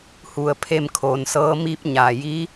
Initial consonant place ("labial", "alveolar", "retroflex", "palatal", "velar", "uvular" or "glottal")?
glottal